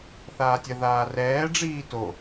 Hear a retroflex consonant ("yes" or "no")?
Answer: yes